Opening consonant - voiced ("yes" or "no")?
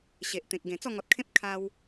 no